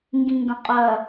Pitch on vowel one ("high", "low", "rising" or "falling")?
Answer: low